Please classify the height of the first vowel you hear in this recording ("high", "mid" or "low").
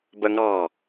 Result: mid